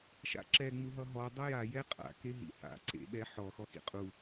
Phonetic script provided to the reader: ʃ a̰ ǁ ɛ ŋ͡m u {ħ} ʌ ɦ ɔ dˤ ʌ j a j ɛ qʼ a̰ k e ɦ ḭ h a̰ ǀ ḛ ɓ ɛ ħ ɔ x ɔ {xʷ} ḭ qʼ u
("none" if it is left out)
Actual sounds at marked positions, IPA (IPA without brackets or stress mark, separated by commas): ɦ, x